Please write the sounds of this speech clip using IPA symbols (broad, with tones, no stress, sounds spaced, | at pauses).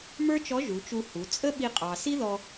m ə˞˥ t͡ʃ ɔ˧˥ ʒ u˩˧ t͡ʃ u˧ h u˩˧ t͡sʼ ə˥ ɓ i˧ qʼ ɑ˩ s i˥ ð ɔ˧